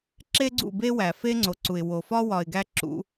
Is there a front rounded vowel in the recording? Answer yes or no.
no